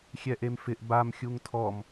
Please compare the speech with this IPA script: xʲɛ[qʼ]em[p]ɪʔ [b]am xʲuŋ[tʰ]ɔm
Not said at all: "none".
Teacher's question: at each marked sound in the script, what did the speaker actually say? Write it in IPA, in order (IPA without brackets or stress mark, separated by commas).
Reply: ʔ, f, b, tʰ